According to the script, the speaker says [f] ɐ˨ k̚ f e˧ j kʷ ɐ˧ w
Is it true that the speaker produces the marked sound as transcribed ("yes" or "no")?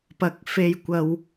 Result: no